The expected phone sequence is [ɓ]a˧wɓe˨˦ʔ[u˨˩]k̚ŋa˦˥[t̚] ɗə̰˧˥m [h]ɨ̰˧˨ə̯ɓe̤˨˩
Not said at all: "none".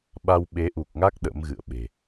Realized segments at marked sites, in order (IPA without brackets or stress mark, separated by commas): ɓ, u˨˩, k̚, ɣ